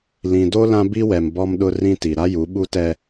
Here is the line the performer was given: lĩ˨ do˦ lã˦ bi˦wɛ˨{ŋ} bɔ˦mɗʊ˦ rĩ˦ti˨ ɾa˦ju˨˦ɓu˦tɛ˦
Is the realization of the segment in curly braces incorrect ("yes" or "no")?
yes